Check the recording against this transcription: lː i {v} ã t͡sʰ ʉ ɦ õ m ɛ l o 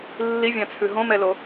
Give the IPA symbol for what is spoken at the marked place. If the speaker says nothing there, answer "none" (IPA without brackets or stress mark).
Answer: vʲ